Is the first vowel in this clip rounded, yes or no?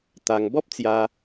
no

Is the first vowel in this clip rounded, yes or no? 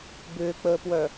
yes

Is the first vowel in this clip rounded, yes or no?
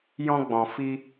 yes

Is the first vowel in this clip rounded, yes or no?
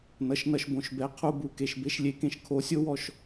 no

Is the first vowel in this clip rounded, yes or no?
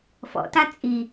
yes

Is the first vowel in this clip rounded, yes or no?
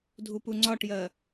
yes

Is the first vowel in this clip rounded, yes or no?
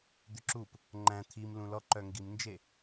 yes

